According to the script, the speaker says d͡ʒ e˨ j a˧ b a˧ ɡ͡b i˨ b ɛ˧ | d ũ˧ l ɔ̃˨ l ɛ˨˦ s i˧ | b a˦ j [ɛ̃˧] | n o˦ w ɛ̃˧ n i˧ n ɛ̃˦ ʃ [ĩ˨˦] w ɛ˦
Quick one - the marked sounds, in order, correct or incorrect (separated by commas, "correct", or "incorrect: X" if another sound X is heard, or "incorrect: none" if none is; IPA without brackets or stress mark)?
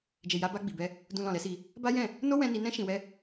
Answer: incorrect: ɛ̃˦˨, incorrect: ĩ˧